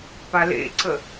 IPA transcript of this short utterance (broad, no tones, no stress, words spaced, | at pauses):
palḛǀə